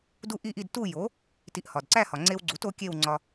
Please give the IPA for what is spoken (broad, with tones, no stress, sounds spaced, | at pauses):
d u˥˨ ʔ i˥˨ ʔ i˥˨ d t u˥˨ j o˩˥ | t i˧ ʔ h ɒ˩ d ǀ æ˥˨ h ɒ˩ ŋ͡ǀ e˧ w ɡ͡ǀ u˩˥ t o˩˥ kʲ e˥˨ w ŋ͡ǀ ɒ˧